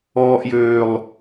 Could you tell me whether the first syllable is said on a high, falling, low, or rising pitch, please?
high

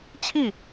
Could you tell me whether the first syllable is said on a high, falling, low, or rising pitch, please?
falling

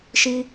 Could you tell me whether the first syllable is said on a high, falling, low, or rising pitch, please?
high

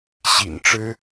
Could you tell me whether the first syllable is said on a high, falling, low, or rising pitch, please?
low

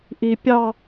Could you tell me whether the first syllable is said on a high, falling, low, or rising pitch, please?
low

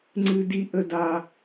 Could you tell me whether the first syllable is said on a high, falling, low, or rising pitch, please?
high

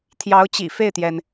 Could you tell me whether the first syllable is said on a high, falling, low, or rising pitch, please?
rising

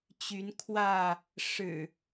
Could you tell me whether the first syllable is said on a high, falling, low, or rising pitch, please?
rising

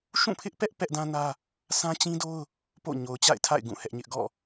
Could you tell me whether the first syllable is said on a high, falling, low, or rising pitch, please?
falling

